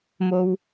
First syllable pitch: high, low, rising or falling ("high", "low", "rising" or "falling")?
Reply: low